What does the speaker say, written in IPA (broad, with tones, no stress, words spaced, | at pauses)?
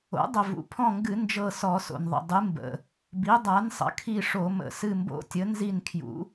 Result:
o̰˩˥ dˤə˩vṵ˩pʰɔ̃˦˨ŋɡɨ˧˩˧ nd͡ʒɤ˦˨sɔ˧˩˧so̰˩nðˤə̰˩ dˤɨ˩˥mbə̰˩ | bi˩˥dˤa˩˥nsˤə̰˩˥kʰi˦˨ ʂo˧˩˧mə̰˧˩˧ sɨ˦˨mbo̰˦˨tʲə˩˥ nzi˦˨nkʰjṵ˩˥